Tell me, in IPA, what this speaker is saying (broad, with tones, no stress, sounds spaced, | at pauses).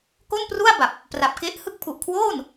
k o˥˩ n p r u˥˩ a̯ b a˨˩ p̚ | p r a˨˩ p̚ k e˦˥ ʔ h ɯ˦˥ k̚ pʰ u˨˩ ʔ kʰ w oː˥˩ n